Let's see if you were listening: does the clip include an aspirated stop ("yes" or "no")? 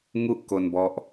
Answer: no